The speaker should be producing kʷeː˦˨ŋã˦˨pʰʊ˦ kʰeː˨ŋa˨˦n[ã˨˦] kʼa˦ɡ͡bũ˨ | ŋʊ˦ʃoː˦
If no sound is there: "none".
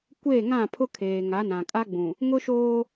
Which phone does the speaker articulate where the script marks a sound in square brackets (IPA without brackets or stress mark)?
ã˨